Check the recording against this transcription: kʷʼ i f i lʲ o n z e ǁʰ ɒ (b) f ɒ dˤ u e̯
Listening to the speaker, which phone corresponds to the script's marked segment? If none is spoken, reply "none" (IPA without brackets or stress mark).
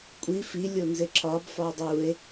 b